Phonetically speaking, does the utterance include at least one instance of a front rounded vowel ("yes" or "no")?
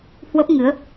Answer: no